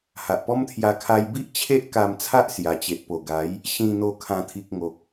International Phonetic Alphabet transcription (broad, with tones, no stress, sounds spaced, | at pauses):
h a˨ ʔ p ɔ˦ m t̪ʰ j a˧ kʰ a˧ j b i˦ ʔ t͡ɕʰ e˦ ʔ k a˧ m t͡sʰ a˦ ʔ s j a˨˩ t͡ɕ e˨ ʔ p o˨˩ ɡ a˨˦ j | ɕ ĩ˧ n̪ o˧ kʰ ã˨˩ t̪ʰ i˨ k̚ ŋ o˨ k̚